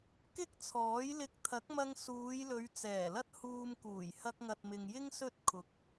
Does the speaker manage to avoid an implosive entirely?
yes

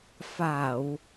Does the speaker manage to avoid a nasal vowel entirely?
yes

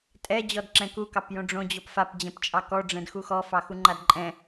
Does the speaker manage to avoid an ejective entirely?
no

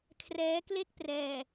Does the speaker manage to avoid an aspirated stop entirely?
no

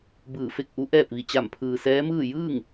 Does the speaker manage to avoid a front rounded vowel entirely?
yes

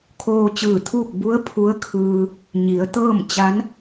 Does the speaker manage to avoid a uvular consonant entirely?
yes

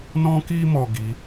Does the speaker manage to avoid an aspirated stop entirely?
yes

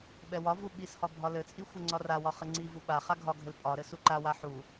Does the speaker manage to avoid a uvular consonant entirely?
no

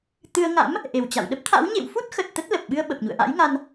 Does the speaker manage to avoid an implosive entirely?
no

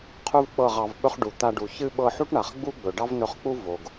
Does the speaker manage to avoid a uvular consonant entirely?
no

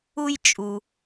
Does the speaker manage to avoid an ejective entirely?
no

